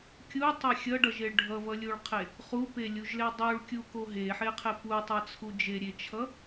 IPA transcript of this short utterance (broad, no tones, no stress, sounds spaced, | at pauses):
kʲ u tˤ e xʲ ʌ ɖ ʌ ʒ e ɭ ɖʱ ʌ v ʌ lʲ u ɭ qʰ e | χ u p e lʲ u ʒ l e dˤ u ɭ kʲ u k o ɦ e ħ e qʰ e p u tˤ ʌ t͡sʰ u d͡ʒ e ɾʲ e t͡ʃʰ ʌ